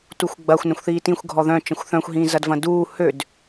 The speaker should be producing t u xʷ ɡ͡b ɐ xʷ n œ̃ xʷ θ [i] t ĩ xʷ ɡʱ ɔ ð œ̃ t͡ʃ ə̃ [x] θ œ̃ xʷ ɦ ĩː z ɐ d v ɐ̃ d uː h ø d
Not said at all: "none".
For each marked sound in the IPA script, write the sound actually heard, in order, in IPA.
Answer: iː, xʷ

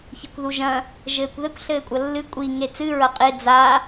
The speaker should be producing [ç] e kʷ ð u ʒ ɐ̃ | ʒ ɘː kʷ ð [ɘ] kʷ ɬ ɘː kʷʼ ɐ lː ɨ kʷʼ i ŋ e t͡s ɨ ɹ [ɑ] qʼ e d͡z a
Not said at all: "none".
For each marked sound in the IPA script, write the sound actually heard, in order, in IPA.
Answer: ç, ɘ, ɐ

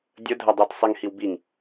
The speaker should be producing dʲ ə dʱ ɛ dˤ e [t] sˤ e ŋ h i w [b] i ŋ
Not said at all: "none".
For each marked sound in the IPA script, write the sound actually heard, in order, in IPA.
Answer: t, b

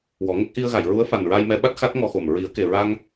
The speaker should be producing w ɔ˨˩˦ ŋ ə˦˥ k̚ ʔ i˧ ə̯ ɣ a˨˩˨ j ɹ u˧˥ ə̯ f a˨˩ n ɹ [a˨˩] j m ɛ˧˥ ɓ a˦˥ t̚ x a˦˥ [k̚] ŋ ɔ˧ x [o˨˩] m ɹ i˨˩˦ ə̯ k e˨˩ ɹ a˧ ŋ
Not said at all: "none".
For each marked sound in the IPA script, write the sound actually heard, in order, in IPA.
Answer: a˧, t̚, o˨˩

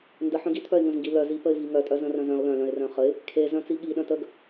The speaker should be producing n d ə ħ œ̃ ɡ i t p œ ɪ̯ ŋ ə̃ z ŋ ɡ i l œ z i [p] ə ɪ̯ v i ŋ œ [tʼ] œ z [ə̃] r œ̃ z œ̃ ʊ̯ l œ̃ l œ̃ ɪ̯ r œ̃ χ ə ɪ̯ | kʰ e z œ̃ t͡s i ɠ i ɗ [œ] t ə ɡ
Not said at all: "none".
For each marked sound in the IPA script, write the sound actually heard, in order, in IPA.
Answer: p, tʼ, ə̃, œ̃

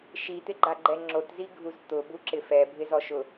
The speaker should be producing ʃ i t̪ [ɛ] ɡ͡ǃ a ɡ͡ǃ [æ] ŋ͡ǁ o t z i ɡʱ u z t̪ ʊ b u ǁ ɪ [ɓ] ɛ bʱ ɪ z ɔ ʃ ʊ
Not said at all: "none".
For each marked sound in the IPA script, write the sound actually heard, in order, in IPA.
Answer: ɪ, ɛ, f

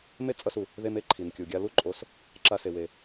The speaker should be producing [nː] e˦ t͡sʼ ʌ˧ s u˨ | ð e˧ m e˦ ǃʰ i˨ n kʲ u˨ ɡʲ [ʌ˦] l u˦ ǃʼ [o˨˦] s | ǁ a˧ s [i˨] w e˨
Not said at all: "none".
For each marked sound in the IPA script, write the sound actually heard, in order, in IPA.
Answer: m, a˦, o˨˦, e˨

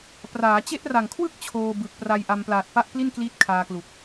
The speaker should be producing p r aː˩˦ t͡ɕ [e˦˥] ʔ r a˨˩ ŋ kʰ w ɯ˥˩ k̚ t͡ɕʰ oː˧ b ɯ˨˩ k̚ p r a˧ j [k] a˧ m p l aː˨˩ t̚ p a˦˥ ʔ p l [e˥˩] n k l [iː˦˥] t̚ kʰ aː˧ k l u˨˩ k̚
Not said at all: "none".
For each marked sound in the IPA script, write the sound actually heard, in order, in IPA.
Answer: e˦˥, ʔ, i˥˩, iː˦˥

